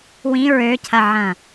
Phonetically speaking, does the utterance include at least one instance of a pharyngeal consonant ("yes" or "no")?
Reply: yes